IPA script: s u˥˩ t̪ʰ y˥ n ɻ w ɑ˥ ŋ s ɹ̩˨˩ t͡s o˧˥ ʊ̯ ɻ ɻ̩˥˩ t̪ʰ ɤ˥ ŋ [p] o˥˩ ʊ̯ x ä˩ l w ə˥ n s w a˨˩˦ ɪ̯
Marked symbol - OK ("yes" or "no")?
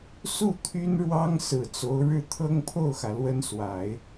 no